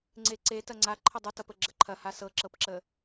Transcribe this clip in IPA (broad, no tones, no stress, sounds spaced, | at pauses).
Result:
ŋ͡ǀ e ǀ e t ɐ ŋ͡ǀ a ǃʰ ə dˤ ə t ʌ p ə ɡ͡ǁ ə ǃʰ ɐ h a s ɤ ǁ ɤ p ǁ ə